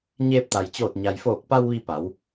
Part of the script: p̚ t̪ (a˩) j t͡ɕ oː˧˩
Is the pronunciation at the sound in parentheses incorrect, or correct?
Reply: correct